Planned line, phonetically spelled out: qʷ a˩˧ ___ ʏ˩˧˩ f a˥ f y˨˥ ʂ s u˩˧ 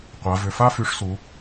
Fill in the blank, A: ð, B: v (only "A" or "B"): B